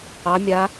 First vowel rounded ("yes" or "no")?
no